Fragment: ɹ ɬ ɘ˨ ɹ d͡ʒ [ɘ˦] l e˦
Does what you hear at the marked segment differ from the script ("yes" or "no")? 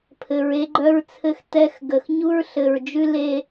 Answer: yes